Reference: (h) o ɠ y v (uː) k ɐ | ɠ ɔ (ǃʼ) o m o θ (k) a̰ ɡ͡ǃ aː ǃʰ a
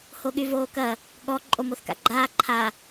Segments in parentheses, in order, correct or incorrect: correct, incorrect, correct, correct

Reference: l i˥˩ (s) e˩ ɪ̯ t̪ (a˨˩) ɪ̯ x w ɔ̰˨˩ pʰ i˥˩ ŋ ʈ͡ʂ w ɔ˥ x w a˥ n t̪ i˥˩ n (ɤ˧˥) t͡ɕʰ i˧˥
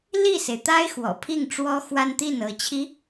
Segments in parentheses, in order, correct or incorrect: correct, incorrect, correct

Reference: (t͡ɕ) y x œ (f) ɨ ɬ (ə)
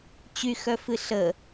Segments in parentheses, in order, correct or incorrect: correct, correct, correct

